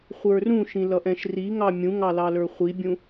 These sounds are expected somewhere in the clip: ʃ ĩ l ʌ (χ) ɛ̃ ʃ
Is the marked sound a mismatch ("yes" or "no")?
yes